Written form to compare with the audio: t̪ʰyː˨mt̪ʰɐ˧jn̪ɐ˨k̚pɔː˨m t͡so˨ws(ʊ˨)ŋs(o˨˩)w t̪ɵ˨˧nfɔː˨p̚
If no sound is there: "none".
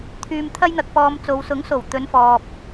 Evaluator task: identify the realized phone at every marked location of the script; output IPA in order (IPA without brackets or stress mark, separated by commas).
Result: ʊ˨˥, o˨˩